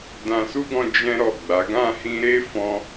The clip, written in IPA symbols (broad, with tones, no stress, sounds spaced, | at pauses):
d ã˧ s u˦ ɡ ɔ̃˧ d͡ʒ ɛ̃˦ ɾ ɔ˦˨ ɡ͡b a˨˦ ɡ ã˦˨ h ĩ˧ ɾ e˦ f ɔ̃˧